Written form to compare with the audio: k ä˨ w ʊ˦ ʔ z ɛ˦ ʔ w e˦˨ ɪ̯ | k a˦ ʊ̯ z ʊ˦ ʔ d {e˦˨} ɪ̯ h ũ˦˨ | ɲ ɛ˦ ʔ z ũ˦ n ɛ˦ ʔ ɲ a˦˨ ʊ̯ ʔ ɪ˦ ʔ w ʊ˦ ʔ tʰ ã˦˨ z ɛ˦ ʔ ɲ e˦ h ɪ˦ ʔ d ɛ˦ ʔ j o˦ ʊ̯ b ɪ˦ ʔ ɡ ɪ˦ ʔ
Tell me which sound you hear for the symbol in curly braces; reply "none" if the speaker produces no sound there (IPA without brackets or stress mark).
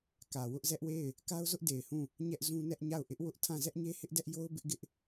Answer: e˨